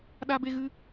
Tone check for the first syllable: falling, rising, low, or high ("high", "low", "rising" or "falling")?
high